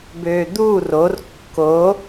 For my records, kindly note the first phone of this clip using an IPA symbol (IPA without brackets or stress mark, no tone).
b